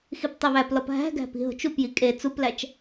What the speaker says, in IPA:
x i p tˤ e β æ p l ɒ p ɦ æ̤ ɡ æ̤ p i̤ ɦ o̤ t͡ʃ u p j i kʼ e t͡s u p l æ t͡ʃ

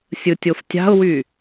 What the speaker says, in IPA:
sʲ ɯ tʲ o f tʲ ɑ̤ ʊ̯ w y

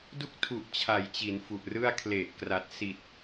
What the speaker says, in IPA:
d u˥˩ k̚ tʰ u˨˩ ʔ t͡ɕʰ a˩˦ j t͡ɕ i˩˦ n f u˨˩ ʔ r ɯ˥˩ a̯ kʰ l e˨˩ ʔ k r a˨˩ t̚ s i˨˩ t̚

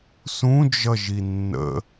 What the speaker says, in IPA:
s ũ d͡ʒ ʌ ʒ i nː ə̰

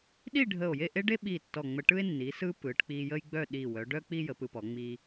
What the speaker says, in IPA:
ɗ i˥˧ ɖʱ ə˧˩ o̯ j e˥˧ ʔ e˥ ɖ e˥ ɓ i˧˩ tː ɔ˧˩ ŋ͡m ə˧ ʈ ɯ˥ e̯ nː i˩˧ s ɯ˧ p ɯ˩˧ ʈ k͡p i˧ j ə˥ j ɡ͡b œ˥˧ ɗ i˧˩ w œ˩˧ ɖ œ˥ k͡p i˥ j ə˩˧ p ɯ˧ p ɔ˩˧ ŋ͡m i˧

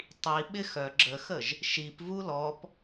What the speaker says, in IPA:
tˤ i ɓ ɪ x œ ɡ͡ǁ ə x ə ʒ | ʃ i p v u l ɔ p

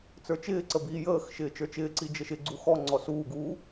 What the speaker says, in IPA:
t͡s ə˞ t͡ʃ ɪː ǀ ə b iː j əː x ʃ ɪː t͡ʃ ə˞ t͡ʃ ɪː ǀ i d͡ʒ ə ʃ ɪ ɡ͡ǀ u x ɔ ŋ͡ǀ ɔ s uː ɡ uː

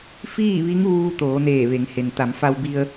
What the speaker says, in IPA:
f iː˥˨ ʋ i˧˥ ŋ ʋ uː˧ t̪ oː˩˧ n eː˧˩ ʋ e˩˧ ŋ h e˩ n t̪ a˩˧ m f a˧ w b i˧ ə̯

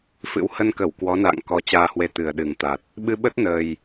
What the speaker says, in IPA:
f ɨ̰˧˥ w h ə˧ n k ə˧˩ w k w ɔ˨˦ n a̰ː˧˨ ŋ k ɔ˨˦ t͡ɕ aː˧ h w e˨˦ t̪ ɨ˨˩ ə̯ ɗ ɨ˨˩ ŋ t̪ a˨˩ t̚ | ɓ ɨ˧ ɓ ə˦˥ t̚ n əː˨˩ j

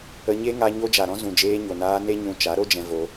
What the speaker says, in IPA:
ə˧ ɲ e˦ ŋ a˧ ɲ o˧ d͡ʒ a˨ ɾ ɔ̃˧ z ũ˨ d͡ʒ eː˧ ɲ o˨ n aː˧ n e˦ ɲ ũ˧ t͡ʃ a˨˦ ɾ o˦ d͡ʒ ɛ̃˧ v o˧

